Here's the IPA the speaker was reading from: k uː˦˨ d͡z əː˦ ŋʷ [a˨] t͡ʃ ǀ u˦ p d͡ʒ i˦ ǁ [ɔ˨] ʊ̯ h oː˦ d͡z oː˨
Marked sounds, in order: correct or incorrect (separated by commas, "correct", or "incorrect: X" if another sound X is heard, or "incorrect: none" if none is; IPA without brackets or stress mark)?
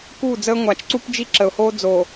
correct, incorrect: ə˨